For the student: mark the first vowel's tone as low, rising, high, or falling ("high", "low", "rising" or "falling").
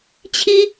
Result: high